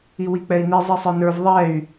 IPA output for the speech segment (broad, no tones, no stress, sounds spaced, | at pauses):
i w i k͡p ɛ i̯ n i zˤ i sˤ ə˞ n ə˞ v ðˤ ɛ y̯